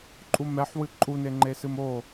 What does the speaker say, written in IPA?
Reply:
ǃʼ u m ɛ ħ w ɨ ǃʼ u n e ŋ͡ǃ e s ɨ m o

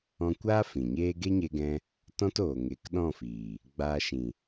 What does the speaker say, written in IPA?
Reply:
ɔ̃˧ kʷ aː˦ f ĩ˨ ɲ eː˦ ɡ e˦ ɲ e˧ ɡ ɛ̃˧ | t ɔ̃˧ t oː˨ ŋ e˨˦ k ɗ ɔ̃˦˨ f iː˨ | ɡ͡b aː˧ ʃ ĩ˨

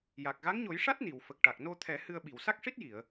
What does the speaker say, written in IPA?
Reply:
j a˨˩ k̚ ɣ a˧˥ ŋ ɲ o˨˩˦ j ʂ a˦˥ t̚ n i˨˩˨ w f ə˨˩ k̚ ʈ a˨˩ k̚ n o˧ t̪ʰ ɛ˨˩˦ h ɨ˧ ə̯ ɓ i˨˩˨ w s a˦˥ k̚ ʂ i˦˥ t̚ j i˨˩˨ ə̯

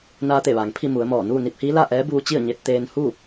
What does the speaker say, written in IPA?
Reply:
n aː˧ t̪ e˧˩ ʋ aː˩ ŋ pʰ i˥˨ m u˩˧ ə̯ m ɔː˧˩ n uː˥˨ n i˧ p̚ h iː˧˥ l a˥˨ ʔ ɛː˧˥ b uː˧ t͡ɕ i˥˨ ə̯ ɲ e˧ t̚ t̪ eː˧ n h u˥˨

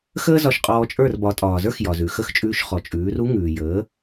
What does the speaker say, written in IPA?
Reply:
x əː˥ z ɒ˧ ʃ qʼ ɔː˧ t͡ʃʼ ə˞˥˩ r b ɒ˩˥ tʼ ɒː˩ z ə˞˥ x j ɒ˩ z ʉ˩ x ə˥˩ x t͡ʃʼ ʉː˧ ʃ χ ɔ˩ t͡ʃʼ ʉː˩˥ r u˥ ŋ ʉː˩ j əː˩˥

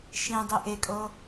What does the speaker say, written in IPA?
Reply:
ʃ ĩ dˤ i ʔ e kʼ ɤ

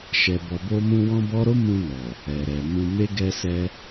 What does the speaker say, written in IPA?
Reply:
ʃ ɛ˨ b ɔ˨ b o˧ m ũ˧ w ɔ̃˦ b ɔ˦ ɾ o˦ m ũ˧ n ɔ˨ | ɛ˨ ɾ ɛ˨ m ũ˧ m e˦ ɡ ɛ˦ s ɛ˦

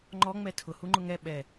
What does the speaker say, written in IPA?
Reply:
ŋ͡ǃ ɔ ŋ͡m ɛ tʰ ʊ h u ŋ͡ǃ ʊ ŋ ɛ ɓ ɛ

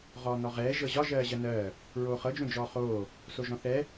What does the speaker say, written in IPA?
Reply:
ʁ ɔː n ɔ ʁ ɛː ʒ ɤ ʑ ɒ ʒ ɜː ʑ ɜ n ɜː | ɹ oː χ ɤ d͡ʒ õ d͡ʒ ɔː χ oː | s o ʒ ɔ̃ θ ɛ

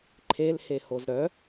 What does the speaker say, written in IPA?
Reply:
ǃʰ e l h e h o z ɾ œ

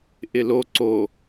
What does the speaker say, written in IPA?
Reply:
ʔ ɪ l o ǀ o

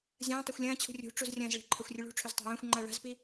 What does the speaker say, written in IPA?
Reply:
zʲ ɐ̃ː tˤ e xʷ lʲ ɐ̃ː t͡ɕʰ ṳ rʲ ṳ ʈ͡ʂ u z rʲ ɐ̃ː z ɭ e̤ ǃʰ ɐ xʷ rʲ ɨ ɭ ṳ ʈ͡ʂʰ ɵ z tˤ a̤ j ɐ̃ː xʷ ŋ͡ǃ a ɭ a̤ z p i

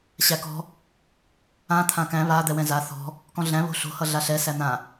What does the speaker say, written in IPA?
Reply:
ɕ æ k ɔ̤ | ã t̪ʰ ã k æ̃ β a d̪ ɛ w ɛ̃ z a θ ɔ̤ | k ɔ̃ ɮ æ̃ β o̤ ɬ o̤ h ʌ ɮ a ɬ ɛ s æ n̪ ã

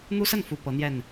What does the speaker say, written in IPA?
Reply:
n̪ u˦ s ə˥˨ n f u˨˩ p ɤ˨˦ n̪ j ɛ˨˩ n

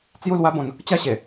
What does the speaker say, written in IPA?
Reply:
t͡s j u˥˧ l w a˦ b ɔ̃˨˦ n | t͡ɕ a˥˧ ɕ e˨˩

